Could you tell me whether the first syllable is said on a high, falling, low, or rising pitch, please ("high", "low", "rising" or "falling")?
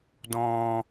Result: high